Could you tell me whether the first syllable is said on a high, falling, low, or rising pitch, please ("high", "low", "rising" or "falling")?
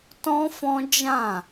high